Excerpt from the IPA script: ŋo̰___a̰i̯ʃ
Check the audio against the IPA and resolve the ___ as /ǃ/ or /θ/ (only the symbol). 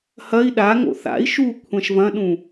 θ